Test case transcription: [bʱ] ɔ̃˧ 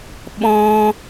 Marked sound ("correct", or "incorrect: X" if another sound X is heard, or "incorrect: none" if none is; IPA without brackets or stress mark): incorrect: ɓ